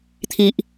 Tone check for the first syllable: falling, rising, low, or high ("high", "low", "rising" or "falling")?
low